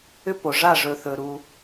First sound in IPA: ʏ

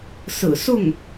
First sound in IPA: s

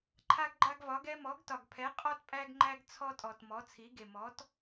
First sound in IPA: ǃʰ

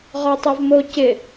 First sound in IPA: ʁ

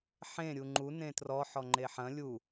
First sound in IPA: ħ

